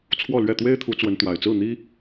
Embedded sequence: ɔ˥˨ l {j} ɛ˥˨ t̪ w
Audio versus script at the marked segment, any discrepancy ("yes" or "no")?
yes